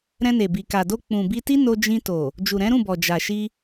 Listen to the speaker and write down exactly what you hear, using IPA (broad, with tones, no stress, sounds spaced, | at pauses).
ɾ ɛ̃˧ n e˨ b i˨ k a˨ d o˧ k͡p ũ˨ b i˧ t i˦ n o˧ d͡ʒ ĩ˧ t o˨ | d͡ʒ u˨ ɾ ɛ̃˨˦ ɾ ũ˦˨ b ɔ˨ d͡ʒ a˨ ʃ i˧